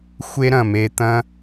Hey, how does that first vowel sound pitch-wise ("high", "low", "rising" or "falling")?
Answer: high